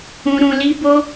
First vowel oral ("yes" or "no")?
no